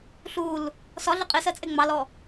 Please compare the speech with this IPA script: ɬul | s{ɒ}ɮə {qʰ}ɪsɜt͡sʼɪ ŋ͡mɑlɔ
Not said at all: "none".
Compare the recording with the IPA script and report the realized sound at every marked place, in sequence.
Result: ɒ, qʼ

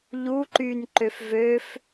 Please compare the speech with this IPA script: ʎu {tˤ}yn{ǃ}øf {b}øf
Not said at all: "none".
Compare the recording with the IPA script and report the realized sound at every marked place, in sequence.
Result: ǃ, ǃ, v

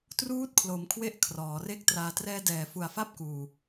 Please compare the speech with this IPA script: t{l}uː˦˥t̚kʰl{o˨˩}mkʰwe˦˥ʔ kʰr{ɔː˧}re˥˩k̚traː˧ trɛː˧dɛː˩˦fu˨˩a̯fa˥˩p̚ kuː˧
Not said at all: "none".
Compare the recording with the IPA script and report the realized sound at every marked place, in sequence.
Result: r, o˩˦, ɔː˩˦

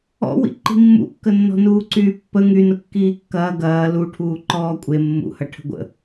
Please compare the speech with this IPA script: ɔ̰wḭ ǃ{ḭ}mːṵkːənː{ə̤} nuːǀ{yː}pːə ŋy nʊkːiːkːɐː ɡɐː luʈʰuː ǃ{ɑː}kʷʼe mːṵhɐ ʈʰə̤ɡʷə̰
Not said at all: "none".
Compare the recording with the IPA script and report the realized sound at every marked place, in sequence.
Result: i̤, ɔ̤, yː, ɔː

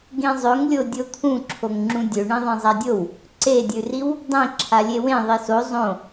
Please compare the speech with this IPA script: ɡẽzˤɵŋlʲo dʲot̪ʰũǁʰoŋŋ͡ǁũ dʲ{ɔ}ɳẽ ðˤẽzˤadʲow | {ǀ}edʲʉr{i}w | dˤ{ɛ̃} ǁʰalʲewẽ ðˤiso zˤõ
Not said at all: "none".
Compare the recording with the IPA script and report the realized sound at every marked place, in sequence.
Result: ɵ, ǀ, i, ẽ

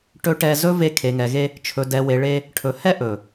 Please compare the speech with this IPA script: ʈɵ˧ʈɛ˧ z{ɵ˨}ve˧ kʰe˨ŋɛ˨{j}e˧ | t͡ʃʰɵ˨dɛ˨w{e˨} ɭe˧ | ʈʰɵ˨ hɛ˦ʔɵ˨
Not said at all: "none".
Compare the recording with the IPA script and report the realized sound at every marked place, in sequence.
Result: ɵ˦, ɣ, e˨

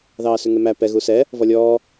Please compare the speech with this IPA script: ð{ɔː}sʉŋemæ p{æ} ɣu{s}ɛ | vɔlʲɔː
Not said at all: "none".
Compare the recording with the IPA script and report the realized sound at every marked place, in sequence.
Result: ɑː, ɛ, s

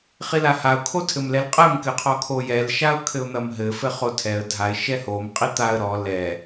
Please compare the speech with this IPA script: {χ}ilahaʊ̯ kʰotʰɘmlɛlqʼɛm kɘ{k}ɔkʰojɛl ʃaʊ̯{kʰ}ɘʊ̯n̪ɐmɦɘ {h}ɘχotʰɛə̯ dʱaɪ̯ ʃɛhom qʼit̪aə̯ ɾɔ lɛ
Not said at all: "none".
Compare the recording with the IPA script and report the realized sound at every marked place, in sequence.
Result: χ, qʰ, kʰ, f

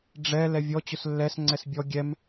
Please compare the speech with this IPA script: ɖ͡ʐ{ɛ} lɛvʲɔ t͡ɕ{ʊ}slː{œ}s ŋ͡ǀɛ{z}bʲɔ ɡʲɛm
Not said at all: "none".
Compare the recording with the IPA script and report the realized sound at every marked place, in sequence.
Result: ɛ, ʊ, ɛ, s

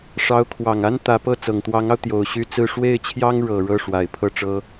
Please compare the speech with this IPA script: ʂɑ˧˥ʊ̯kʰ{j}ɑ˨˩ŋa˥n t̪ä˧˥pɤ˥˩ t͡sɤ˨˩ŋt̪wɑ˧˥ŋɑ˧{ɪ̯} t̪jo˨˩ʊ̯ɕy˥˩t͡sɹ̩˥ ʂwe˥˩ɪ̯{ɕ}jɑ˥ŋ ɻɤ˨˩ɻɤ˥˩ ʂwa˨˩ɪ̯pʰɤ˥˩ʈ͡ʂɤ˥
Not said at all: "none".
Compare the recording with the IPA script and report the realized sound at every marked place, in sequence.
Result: w, ʊ̯, t͡ɕʰ

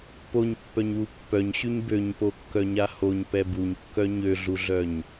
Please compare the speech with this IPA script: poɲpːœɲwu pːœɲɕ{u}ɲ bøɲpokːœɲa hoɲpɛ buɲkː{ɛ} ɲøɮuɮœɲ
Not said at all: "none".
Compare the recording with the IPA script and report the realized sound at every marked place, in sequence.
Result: y, œ

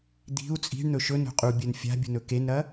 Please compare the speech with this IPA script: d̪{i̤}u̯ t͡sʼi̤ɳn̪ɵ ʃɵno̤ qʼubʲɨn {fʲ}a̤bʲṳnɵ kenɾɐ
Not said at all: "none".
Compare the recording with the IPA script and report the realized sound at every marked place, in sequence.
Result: i̤, fʲ

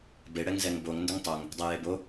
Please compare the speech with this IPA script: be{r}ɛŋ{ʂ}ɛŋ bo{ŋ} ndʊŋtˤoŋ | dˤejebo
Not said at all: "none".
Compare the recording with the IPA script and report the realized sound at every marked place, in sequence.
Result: ɽ, z, ŋ

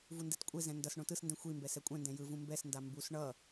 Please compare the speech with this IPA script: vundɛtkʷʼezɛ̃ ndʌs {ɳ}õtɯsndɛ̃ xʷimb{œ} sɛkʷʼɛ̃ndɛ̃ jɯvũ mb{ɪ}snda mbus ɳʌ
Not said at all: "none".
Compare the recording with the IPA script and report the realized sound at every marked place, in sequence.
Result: ɳ, ɛ, ɛ

